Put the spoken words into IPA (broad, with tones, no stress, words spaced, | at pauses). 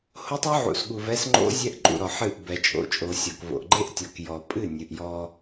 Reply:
ho˦tˤɔ˦ʕṵ˨sɠu˨v ɛ˦s ŋ͡ǃo̰˦ zʲɛ˦ʔǃʼṵ˨ ɾɔ˨ħɨ˦˨ʔ bɛ˨t͡ʃʼo̰˨t͡ʃʼo˨ sʲɔ˨kvo̰˨ʔ ɡ͡ǃe˦ʔtʲɔ˨kjɔ˨pʼɨ˦˨ nʲɨ˨ʔjɔ˦